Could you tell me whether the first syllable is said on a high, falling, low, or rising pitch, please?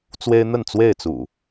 high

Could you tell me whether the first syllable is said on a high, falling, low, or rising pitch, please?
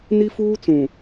high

